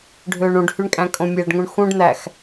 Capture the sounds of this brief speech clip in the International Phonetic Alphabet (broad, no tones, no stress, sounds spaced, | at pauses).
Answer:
ɖʱ øː ɳ ũ ɖ h y ɳ kʼ æ̃ kʼ õ mʲ æ ɖ ŋ ũ ɳ x ũ ɖ n̪ æ x